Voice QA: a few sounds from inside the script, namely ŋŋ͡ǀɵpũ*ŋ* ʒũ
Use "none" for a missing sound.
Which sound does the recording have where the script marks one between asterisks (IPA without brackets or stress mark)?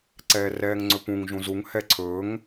ŋ